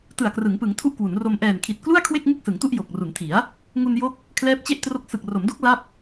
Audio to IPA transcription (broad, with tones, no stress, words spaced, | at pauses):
tɯ˨˩a̯krɯ˩˦ŋpɯ˩˦ŋtʰu˦˥ʔ kwu˩˦nro˧m ʔɛː˨˩nkʰi˨˩t̚ klu˥˩a̯kʰwe˥˩k̚ ŋɯ˥˩k̚sɯ˩˦ŋtu˥˩ʔ jo˨˩k̚ ru˩˦ntʰi˩˦a̯ | ŋu˧njo˦˥k̚ | kʰlɛː˦˥p̚t͡ɕe˥˩ʔ tro˦˥k̚ sɯ˨˩k̚ro˩˦mdo˦˥k̚ la˥˩p̚